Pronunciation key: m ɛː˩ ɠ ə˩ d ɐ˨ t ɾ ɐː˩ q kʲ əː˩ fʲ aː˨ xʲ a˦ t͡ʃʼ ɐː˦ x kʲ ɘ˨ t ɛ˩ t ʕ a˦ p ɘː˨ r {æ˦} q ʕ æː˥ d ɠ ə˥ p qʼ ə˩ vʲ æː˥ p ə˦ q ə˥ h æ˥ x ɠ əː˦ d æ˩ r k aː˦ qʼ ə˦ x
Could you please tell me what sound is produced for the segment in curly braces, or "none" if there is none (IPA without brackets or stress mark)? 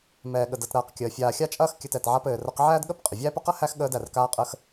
ə˦